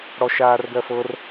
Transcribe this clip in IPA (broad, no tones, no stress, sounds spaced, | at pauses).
ɽ ɔ ʃ aː r ɡ ɜ f ɤ r